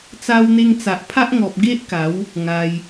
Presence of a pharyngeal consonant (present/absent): absent